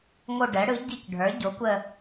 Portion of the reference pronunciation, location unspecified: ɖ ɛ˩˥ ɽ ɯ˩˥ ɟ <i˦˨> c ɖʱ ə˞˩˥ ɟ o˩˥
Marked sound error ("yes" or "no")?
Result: no